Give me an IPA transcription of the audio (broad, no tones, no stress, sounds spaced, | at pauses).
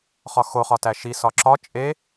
χ ɒ x o χ ɒ t æ ʃ i s ɒ ǁ ɒ t͡ʃʼ e